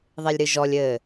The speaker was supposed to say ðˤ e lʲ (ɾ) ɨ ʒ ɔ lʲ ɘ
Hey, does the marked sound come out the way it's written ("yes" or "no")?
yes